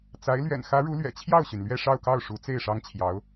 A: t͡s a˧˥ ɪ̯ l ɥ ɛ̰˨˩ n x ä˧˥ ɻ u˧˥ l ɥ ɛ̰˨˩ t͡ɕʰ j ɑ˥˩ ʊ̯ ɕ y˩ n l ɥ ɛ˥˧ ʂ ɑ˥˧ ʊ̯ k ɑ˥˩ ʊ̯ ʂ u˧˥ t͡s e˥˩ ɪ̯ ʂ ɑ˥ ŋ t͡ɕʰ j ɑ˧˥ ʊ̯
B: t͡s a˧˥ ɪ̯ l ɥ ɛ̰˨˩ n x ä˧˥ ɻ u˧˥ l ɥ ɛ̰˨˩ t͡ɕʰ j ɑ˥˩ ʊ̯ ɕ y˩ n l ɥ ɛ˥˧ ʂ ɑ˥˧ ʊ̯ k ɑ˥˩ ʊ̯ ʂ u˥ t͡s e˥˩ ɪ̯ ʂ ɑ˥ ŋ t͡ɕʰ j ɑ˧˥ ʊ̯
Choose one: A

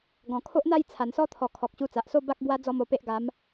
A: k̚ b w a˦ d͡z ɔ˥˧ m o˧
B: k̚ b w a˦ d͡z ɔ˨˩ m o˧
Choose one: A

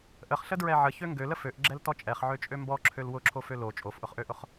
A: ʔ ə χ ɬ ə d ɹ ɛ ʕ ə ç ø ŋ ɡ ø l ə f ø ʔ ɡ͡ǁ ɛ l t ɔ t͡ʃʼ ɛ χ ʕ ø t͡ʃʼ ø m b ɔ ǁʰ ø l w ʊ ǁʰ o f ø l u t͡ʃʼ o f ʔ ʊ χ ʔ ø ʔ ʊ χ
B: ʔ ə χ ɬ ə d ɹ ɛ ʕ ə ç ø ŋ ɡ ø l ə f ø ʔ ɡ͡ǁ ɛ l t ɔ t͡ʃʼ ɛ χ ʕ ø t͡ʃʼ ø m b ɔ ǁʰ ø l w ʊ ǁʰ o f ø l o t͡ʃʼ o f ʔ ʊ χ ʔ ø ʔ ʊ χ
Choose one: B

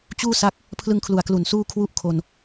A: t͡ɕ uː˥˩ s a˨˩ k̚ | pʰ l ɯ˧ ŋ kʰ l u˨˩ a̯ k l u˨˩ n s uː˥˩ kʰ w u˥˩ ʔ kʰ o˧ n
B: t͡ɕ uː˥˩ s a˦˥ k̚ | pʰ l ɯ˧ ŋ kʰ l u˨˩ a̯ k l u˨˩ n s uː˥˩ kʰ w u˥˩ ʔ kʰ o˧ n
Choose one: B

